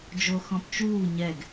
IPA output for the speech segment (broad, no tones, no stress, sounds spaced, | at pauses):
d͡ʒ o x ɔ̃ p t͡ʃ uː ɲ ɛ ɡ